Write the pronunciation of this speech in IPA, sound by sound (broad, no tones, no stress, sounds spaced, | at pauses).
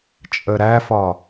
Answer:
t͡ʃʼ ə ɾ æ f ɒ